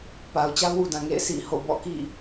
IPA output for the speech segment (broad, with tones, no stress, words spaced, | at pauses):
pa˨ʊ̯t͡ɕa˦ʊ̯wu˨dã˨ ŋḛ˦˨ɪ̯ sḭ˦˨ ho̰˦˨ bɔ̰˦˨kḭ˦˨